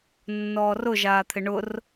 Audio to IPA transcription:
nːɔːrʊ ʒaːt̪ʰɪɳʊr

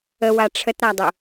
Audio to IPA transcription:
əwa ʈ͡ʂʰətɾadˤʊ

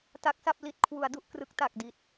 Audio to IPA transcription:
ta˦˥k̚sa˥˩p̚ li˨˩t̚ kʰwu˩˦a̯ du˦˥ʔkrɯ˦˥k̚ ta˨˩k̚di˨˩t̚

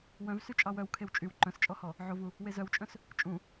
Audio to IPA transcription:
wœ̃vsy t͡ʃʼɑwœw kʰewt͡ʃʼyw ǃœ̃st͡ʃʼɔhɔ | ʕovu | wezœwt͡ʃʼœ̃s | t͡ʃʼũ

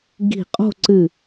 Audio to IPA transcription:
ɡi̤˧˩qʼo̤˥˧ ǀɨ˧˩

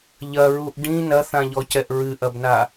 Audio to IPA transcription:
ʎɐɹuʔ ɖĩ nɐθãʎɔcɛʔ ɹɨʔɐbna

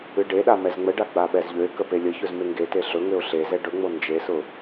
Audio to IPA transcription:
ɨɖeɗa mɛzŋ͡məɖa ɡ͡baɓɛzʎøɪ̯kə pelʲəçɵz meŋɡete ɬɵŋøʊ̯ ɬezɛ ɖɵŋ͡mo nd͡ʒesʊ

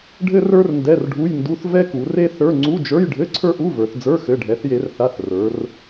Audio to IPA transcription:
ɖʱɘ˥rə˞˥r ndɛ˧˥˧rɖʱu˧˥˧jndu˧˥˧θ vɛ˥ku˩˧re˥θə˞˧˥˧ ŋ͡ǀu˧˥˧d͡ʒə˞˧˥˧jɖʱɘ˧˥˧ ǀʰə˞˥ʔu˧˥˧və˞˩˧θd͡zə˞˧˥˧ xɘ˩˧˩ɖʱɛ˩˧θje˩˧rθa˩˧˩θ rə˞˩˧r

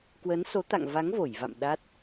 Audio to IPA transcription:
kwə˨˦nso˨˦t̪a̰˧˨ŋva˨˦ŋ vo˧˩jva̰˧˨m ɗa˦˥t̚

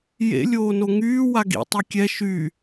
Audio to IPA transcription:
jḛ lʲoːnoŋyː waɡḭ tˤykʲɛ ʃy

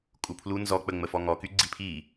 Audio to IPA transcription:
kʼupʰlu nzɔk͡pə ŋ͡məfɔŋɔky ɡ͡ǀipʰi

